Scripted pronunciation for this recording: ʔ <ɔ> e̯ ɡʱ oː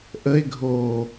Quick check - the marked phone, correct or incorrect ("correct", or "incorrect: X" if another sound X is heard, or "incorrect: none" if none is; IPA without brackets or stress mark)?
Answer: incorrect: ə